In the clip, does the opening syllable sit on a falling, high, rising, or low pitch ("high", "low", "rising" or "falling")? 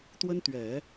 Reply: high